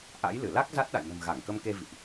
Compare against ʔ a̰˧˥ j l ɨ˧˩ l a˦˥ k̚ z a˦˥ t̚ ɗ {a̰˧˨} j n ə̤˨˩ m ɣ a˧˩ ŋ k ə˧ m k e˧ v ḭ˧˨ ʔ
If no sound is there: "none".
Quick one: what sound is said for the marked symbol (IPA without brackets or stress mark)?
a̰˧˨